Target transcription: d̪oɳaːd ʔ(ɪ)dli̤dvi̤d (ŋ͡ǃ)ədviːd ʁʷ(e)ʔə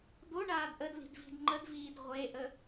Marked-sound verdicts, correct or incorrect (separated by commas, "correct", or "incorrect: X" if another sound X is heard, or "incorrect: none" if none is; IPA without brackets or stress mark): incorrect: ə, correct, correct